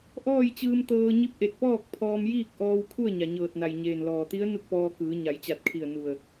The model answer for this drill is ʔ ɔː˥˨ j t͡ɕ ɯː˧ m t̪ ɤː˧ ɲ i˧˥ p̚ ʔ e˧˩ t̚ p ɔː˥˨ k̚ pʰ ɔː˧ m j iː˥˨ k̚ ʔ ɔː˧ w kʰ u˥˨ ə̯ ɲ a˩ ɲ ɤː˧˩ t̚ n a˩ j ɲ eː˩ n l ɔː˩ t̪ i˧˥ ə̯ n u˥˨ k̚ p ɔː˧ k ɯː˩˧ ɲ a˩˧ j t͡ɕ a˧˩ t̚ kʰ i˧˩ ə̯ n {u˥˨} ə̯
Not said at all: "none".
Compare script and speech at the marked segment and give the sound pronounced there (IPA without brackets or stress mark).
u˧˩